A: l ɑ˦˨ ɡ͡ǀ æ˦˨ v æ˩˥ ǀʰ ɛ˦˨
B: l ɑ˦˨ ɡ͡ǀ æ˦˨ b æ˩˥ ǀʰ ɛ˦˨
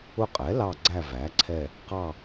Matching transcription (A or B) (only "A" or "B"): A